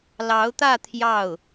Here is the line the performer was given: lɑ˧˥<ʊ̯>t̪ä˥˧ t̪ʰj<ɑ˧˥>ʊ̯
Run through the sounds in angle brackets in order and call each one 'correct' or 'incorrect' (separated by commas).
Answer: correct, incorrect